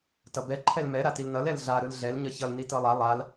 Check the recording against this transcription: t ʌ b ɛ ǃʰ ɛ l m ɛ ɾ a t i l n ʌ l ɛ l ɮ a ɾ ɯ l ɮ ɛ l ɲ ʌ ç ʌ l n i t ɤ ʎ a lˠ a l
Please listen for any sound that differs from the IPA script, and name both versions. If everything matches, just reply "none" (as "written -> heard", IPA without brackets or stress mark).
ʎ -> lˠ